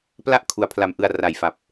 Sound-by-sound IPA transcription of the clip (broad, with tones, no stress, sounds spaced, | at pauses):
p l a˦˥ ʔ kʰ u˩˦ a̯ pʰ l a˨˩ m ʔ ɯ˨˩ a̯ r a˨˩ j f a˨˩ p̚